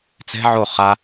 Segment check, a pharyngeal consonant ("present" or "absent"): present